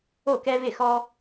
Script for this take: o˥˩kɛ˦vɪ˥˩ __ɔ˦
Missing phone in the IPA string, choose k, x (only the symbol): x